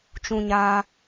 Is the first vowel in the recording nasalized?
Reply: yes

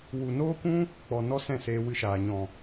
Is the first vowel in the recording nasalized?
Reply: no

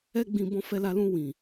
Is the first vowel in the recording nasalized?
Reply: no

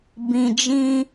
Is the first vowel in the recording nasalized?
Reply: yes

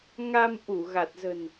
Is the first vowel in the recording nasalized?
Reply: no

